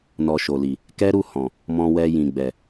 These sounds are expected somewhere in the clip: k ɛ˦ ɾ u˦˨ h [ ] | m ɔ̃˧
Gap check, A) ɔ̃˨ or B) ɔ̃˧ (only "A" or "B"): A